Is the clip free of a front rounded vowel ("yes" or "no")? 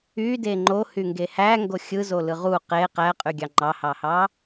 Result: no